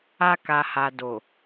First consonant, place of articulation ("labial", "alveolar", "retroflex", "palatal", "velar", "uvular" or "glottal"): velar